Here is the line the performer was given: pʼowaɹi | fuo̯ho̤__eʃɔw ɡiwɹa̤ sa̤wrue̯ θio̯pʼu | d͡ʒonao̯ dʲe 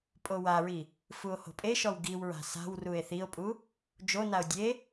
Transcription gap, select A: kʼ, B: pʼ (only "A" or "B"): B